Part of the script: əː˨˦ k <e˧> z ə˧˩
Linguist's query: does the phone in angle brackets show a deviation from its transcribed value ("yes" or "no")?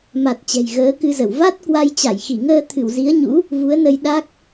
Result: yes